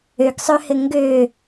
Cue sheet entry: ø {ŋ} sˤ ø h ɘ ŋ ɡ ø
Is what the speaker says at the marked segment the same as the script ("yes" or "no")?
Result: no